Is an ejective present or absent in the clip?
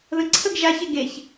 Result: absent